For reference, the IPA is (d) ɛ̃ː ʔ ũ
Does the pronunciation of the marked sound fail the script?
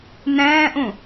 yes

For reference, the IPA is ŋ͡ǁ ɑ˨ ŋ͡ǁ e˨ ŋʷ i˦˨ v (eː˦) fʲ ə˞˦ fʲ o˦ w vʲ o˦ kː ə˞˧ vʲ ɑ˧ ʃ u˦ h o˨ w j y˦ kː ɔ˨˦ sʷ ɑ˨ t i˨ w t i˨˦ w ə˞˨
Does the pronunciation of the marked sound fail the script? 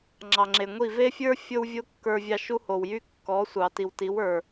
yes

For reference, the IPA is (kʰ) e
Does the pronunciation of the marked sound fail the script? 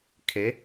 no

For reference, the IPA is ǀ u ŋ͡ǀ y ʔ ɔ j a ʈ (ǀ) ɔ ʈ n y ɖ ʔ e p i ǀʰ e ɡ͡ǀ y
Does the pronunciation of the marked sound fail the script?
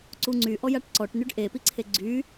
no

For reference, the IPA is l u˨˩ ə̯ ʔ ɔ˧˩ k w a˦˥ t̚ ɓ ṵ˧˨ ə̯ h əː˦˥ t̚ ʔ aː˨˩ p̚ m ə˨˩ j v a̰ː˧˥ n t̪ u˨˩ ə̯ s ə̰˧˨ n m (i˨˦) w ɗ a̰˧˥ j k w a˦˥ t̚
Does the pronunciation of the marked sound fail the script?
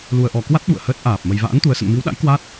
no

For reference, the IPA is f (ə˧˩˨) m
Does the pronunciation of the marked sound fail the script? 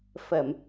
no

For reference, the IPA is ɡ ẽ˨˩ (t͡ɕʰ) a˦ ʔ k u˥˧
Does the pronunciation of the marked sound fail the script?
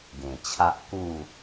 no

